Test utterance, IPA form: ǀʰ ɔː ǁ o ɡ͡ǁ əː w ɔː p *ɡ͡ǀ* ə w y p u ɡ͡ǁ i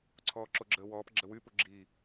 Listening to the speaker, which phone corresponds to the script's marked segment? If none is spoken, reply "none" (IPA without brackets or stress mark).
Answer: ɡ͡ǁ